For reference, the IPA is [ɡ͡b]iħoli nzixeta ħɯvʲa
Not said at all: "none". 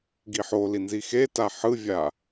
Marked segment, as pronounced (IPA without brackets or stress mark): ɡ